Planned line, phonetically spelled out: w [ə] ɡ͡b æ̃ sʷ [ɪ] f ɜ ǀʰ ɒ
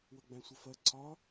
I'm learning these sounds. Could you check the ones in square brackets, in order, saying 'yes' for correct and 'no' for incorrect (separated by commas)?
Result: yes, yes